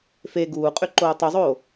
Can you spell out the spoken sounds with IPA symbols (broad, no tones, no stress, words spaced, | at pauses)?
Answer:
fe ɡuːqʼy ǃoːtˤuzˤoː